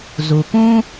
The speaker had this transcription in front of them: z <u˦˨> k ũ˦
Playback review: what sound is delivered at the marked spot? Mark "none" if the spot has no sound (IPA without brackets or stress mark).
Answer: u˨